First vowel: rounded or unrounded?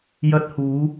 unrounded